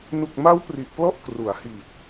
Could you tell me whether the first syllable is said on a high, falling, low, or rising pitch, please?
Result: low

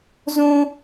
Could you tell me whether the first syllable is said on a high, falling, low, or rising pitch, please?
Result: high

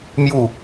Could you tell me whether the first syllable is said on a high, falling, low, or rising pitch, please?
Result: falling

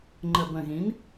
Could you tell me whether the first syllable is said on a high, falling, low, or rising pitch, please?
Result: low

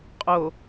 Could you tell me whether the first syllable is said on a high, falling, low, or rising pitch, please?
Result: low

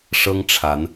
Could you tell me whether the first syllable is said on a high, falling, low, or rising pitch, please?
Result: high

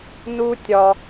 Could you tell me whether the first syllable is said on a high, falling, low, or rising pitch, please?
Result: high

